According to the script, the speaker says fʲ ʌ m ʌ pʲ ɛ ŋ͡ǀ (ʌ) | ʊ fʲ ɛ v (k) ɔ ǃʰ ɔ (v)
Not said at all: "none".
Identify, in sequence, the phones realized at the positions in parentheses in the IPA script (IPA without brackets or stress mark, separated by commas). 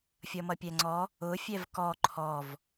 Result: ɔ, k, v